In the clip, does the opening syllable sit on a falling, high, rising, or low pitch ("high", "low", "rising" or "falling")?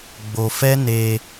low